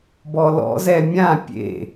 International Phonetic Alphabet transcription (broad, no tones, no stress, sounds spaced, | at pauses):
b ɔ l ɔ̰ z ɛ mʲ ã pʲ ḛ